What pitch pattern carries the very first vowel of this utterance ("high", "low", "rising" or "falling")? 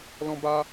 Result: high